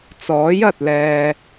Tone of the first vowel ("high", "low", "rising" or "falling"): rising